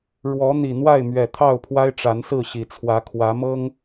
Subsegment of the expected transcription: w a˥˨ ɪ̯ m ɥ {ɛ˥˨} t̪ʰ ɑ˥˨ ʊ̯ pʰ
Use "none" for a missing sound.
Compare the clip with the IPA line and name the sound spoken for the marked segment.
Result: ɛ˨˩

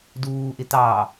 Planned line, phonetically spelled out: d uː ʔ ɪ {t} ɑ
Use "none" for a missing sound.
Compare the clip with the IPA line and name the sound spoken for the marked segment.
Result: t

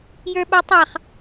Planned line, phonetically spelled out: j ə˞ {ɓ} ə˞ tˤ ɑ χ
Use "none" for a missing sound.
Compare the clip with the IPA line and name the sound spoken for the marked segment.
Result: ɓ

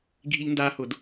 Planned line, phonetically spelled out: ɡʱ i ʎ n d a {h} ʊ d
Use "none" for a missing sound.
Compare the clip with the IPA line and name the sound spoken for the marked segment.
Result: h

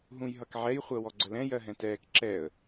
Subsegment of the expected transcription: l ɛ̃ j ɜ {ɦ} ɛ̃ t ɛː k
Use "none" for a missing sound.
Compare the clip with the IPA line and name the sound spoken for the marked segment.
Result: ɦ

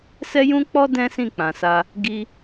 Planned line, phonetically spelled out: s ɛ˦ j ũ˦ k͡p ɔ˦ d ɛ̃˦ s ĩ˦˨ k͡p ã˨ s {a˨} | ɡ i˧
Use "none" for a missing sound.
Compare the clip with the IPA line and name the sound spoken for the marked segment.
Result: a˧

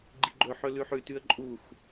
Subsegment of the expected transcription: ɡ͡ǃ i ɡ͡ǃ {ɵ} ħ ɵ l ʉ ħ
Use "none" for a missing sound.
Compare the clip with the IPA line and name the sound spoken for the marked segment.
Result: ɵ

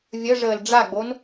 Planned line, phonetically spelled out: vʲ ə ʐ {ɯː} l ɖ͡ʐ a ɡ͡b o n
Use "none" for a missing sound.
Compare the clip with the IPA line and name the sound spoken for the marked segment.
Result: əː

